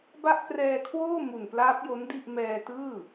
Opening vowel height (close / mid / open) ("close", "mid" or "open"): open